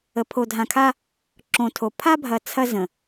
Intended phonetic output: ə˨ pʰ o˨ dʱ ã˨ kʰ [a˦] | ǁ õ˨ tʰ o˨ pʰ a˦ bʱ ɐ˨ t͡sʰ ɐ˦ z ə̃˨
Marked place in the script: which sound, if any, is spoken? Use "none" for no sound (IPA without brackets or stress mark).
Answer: a˦